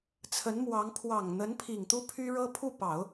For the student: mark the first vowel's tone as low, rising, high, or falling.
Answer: rising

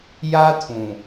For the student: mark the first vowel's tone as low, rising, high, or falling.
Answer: high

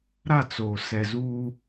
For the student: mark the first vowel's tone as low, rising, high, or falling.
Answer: falling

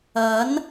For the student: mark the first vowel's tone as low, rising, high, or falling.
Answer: rising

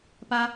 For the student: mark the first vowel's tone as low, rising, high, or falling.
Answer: high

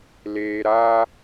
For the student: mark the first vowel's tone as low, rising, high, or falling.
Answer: low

